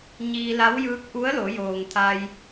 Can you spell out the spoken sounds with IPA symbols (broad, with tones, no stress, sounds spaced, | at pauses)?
ɲ iː˧ l a˧˥ w j ɯː˧˥ k̚ ʔ u˧˥ ə̯ l o˩˧ j oː˩ ŋ t̪ʰ a˧ j